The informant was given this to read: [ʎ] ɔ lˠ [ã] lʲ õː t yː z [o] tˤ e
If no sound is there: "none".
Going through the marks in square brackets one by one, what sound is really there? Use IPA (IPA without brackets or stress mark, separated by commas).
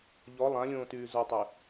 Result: ʎ, ã, o